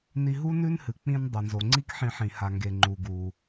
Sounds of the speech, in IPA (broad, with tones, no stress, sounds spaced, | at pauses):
n i˧ ɦ u˥ n ʉ˥ n h ɨ˩ k͡p ĩ˧ n dˤ ɐ˩ n z o˩ ŋ͡ǀ i˥ k ħ ĩ˧ ħ ĩ˩ h a˩ ŋ ɡ e˩ ŋ͡ǃ u˩ ɡ u˩